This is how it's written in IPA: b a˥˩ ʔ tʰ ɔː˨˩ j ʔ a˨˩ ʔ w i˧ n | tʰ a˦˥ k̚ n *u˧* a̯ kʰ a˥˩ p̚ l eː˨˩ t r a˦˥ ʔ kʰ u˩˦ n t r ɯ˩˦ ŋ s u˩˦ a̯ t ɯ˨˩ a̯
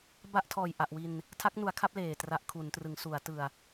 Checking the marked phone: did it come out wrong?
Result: yes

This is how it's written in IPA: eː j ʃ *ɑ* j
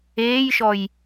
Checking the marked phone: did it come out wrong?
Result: yes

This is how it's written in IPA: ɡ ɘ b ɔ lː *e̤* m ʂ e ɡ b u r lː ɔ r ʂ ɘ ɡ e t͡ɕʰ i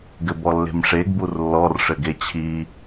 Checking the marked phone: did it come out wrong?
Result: no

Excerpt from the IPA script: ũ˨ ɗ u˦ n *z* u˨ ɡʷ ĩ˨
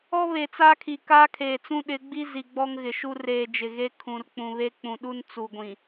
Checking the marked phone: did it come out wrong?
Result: yes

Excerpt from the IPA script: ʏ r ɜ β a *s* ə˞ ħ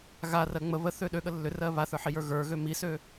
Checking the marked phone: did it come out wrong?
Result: yes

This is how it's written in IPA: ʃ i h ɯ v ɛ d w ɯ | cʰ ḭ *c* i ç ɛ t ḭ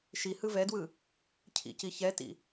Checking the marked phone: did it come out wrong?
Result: no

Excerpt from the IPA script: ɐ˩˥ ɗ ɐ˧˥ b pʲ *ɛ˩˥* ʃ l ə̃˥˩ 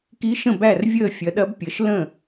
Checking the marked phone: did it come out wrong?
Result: yes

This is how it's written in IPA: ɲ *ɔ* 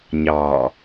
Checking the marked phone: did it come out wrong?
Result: yes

